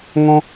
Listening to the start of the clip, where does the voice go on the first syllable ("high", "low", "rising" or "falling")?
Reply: high